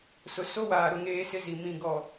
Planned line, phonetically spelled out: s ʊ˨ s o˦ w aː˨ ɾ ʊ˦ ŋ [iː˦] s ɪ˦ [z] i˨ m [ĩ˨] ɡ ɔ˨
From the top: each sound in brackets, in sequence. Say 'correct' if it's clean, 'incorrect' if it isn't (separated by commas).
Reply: incorrect, correct, correct